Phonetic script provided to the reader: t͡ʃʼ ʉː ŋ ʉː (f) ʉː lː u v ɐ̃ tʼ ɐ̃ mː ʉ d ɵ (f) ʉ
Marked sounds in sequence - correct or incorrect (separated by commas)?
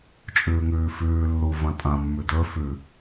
correct, correct